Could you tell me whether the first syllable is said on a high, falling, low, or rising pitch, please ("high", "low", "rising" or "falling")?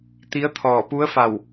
rising